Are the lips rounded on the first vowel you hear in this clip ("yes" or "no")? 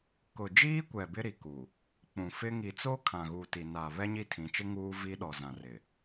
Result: yes